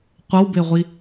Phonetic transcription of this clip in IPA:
qʷ ʌ w b e ʁʷ i

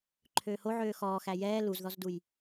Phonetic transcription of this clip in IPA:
ǃʰ øː h o ʕ øː x ɔː x æ j ɛː l u z ð ɔ z d u j

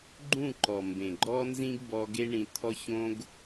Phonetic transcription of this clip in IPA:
ɡ͡ǃ ũ˦˨ ǃ ɔ˨ m b ẽ˨ ɡ͡ǃ ɔ˦ n z ĩ˦ ɡ b ɔ˧ ɡ e˦ ɳ ĩ˧ t̪ʰ ɔ˦ ç õ˦ ɡ

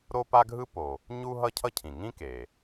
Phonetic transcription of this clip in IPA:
ɾ o˥ p a˥ ɡʱ ɯ˥ p o˩ | ɲ u˥ ɦ ʌ˥ cʰ ʌ˥ cʰ ĩ˩ ŋ ĩ˥ k e˩

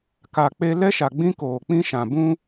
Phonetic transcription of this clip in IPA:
k a˨ k͡p e˦ l ɛ˦ ʃ a˨ ɡ͡b ĩ˦ k oː˨ k͡p ĩ˦ ʃ ã˨ b ũ˦

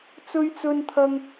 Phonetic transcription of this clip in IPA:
t͡s ɵ˥ ɥ t͡s ɵ˥ n t̪ʰ ɐ˥ ŋ

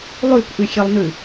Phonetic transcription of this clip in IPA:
lˠ ʉ k ʔ ʉ xʲ ɛ lˠ n ʉ

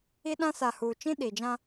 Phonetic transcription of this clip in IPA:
i˦ ɗ ã˦ s a˨ h uː˨ t͡ʃ ĩ˦ ɗ i˨ d͡ʒ ã˦

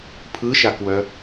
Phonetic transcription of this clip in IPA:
pʰ ɯ ʃ a k w œ

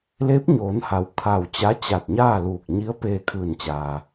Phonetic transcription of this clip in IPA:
l eː˧˥ p̚ ɲ oː˩˧ n h a˩ w kʰ a˧˩ w t͡ɕ a˧˥ t͡ɕ a˧˩ t̚ ɲ aː˥˨ l uː˧˩ k̚ ɲ i˧˥ ə̯ p eː˧ kʰ ɯː˧˩ n t͡ɕ aː˩

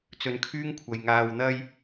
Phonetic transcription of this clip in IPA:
t͡s ɵ˨ n kʰ yː˥ ŋ kʷʰ ɐ˨ j ŋ aː˧ w n̪ ɐ˥ j

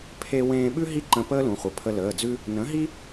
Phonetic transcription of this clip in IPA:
pʰ e˧ w ẽː˧ ɓ ʉ˥ ɦ i˥˨ ǃ ə̃˧ p əː˥ l ũ˩˧ χʷ ə˩˧ pʰ ə˧ l əː˩˧˩ d͡z ʉ˥ | n ə̃˩˥ ɦ i˥

